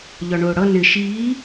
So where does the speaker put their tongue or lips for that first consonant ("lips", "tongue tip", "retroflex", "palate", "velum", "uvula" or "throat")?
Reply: palate